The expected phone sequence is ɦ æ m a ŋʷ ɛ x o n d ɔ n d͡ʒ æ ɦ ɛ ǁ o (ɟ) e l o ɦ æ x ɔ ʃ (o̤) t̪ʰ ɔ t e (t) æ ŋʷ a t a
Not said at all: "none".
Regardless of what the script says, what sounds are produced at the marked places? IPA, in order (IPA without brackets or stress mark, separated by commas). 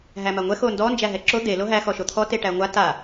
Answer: d̪, o, ʈ